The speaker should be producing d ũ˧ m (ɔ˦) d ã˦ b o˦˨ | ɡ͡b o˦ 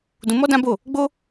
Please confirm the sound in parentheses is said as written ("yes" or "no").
yes